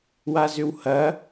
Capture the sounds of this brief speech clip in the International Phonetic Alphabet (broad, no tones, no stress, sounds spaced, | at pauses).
w a z ʏ w h ɐ